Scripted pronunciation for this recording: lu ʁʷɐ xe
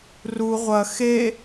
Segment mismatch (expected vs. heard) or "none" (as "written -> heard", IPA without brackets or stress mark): l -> r